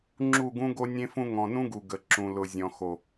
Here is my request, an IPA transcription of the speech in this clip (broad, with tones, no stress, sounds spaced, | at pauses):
ŋ͡ǁ u˦˨ ɡ ũ˦ ɡ o˦ nʲ ẽ˦ f ũ˦ ŋ ɔ̃˨ n ũ˦ ɡ u˨ ɡ ə˨ ǁ ũ˨ l ʊ˨ zʲ ɔ̃˨ x o˨